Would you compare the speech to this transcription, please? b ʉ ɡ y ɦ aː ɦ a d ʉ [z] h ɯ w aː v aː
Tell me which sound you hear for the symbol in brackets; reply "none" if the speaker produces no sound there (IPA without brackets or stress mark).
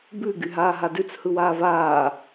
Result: t͡s